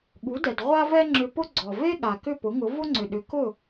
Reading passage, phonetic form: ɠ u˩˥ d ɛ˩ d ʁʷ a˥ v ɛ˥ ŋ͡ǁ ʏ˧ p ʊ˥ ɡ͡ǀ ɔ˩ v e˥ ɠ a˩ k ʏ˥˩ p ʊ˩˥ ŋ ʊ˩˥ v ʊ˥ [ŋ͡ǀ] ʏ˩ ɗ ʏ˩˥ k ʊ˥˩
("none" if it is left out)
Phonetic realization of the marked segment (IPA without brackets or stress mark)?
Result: ŋ͡ǀ